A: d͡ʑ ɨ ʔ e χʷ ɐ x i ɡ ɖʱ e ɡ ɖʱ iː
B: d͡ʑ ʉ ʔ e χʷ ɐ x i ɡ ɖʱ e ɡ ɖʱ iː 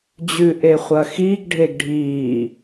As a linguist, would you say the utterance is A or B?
B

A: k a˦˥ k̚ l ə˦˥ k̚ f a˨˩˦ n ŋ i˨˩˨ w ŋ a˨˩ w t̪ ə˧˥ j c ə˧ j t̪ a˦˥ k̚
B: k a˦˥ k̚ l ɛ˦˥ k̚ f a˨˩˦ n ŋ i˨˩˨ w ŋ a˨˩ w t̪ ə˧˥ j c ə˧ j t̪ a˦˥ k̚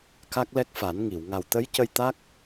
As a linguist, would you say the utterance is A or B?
B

